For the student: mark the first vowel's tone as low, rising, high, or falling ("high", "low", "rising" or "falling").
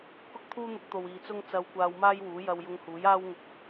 high